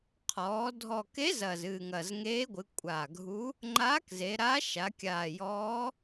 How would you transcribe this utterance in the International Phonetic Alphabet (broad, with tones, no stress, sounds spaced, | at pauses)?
qʰ ɔː˩˧ dʱ ɔ˨˩ k e˧˥ z ɐː˨˩ z ɨː˨˩ ŋ ɐ˨˩ z ŋ eː˧˥ ɡʷ ɨ˩˧ kʷʼ a˨˩ ɡʱ u˧˥ | ŋ͡ǃ aː˧˥ k z e˩˧ ɾ a˧˥ ʃ a˩˧ kʲ aː˨˩ j ɔː˧˥